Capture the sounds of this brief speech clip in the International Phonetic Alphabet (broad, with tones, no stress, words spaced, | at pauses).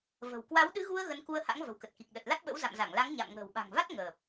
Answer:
və̤˨˩w kwa˨˦wɗɨ˨˦ɣu˧ə̯ ɣə˨˦nku˧ə̯ha̰˧˥ŋ və̤˨˩wkə˨˩t̚ki˨˩k̚ ɗə˨˩t̚la˦˥t̚ɓə̰˧˥w za̰˧˨mza˧˩ŋla˨˦ŋ ɲa̰˧˨m ŋə̤ː˨˩wɓa̤˨˩ŋva˦˥t̚ ŋəː˨˩p̚